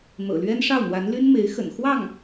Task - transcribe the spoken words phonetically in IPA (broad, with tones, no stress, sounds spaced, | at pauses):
n̪ ɤ̰˨˩ l ɥ ɛ˥ n ʂ ɑ˥˩ ʊ̯ n̪ w a˧˥ n l y˥ n m e˧˥ ɪ̯ x ə̰˨˩ n x w ɑ˥˩ ŋ